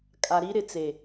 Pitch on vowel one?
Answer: low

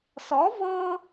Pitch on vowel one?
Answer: rising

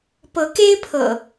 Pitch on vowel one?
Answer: rising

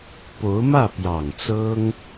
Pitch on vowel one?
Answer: rising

